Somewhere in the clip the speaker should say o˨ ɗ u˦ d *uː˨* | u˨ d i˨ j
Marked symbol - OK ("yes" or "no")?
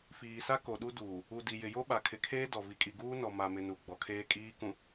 yes